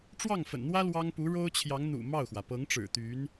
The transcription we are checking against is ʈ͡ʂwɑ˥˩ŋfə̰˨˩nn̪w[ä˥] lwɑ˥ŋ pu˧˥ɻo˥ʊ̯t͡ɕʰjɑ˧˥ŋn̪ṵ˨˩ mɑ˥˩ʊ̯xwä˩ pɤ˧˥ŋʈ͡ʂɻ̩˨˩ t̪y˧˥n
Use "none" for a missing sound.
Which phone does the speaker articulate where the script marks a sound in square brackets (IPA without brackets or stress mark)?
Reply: ä˥